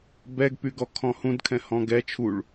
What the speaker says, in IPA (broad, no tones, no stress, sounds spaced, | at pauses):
b ɛ ɡ p y ɡ ɔ kʰ ɔ̃ h ũ d kʰ ɛ̃ h ɔ̃ ɡ ɛ t͡ʃʰ u ɭ